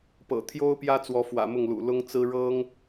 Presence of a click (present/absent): absent